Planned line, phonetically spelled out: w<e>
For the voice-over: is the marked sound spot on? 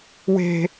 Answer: no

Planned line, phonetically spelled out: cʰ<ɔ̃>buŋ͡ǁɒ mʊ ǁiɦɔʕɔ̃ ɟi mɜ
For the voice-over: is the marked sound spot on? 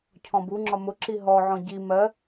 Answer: yes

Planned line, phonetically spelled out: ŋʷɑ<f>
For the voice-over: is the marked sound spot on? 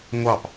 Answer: no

